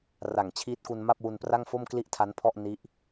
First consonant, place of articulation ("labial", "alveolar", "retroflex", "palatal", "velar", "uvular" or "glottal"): alveolar